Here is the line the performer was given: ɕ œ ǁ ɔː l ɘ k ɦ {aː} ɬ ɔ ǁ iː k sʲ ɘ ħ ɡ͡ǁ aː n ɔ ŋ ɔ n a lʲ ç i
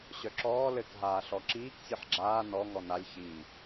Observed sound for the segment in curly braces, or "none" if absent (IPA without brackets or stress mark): aː